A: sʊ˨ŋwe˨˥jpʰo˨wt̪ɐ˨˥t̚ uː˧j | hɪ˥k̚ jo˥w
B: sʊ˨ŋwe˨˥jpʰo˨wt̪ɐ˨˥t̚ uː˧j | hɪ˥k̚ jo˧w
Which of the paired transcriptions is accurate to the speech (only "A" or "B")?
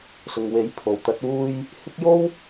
A